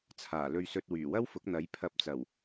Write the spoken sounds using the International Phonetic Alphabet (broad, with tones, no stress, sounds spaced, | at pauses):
t͡sʰ aː˨˩ l ɵ˧ ɥ s ɵ˧ t̚ w yː˨˩ w ɐ˥ w f ʊ˨˥ k̚ n̪ ɐ˨˥ j pʰ ɐ˧ p̚ t͡s ɐ˨˩ w